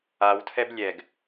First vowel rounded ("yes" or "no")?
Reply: no